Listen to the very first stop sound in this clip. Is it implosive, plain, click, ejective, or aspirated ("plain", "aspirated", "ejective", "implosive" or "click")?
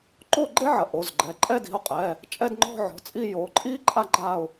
click